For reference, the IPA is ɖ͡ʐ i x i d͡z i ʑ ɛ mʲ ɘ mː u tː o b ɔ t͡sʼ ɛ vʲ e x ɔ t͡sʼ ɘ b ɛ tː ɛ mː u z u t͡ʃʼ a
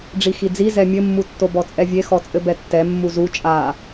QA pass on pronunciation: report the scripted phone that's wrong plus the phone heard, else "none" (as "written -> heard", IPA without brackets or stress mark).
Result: ʑ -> z